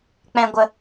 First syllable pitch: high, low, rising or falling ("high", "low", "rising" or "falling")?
low